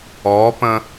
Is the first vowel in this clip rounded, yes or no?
yes